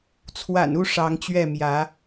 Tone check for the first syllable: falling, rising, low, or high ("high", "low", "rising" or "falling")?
low